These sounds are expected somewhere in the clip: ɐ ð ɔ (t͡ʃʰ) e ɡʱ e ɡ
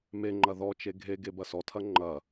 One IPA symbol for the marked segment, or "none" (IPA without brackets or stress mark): t͡ʃ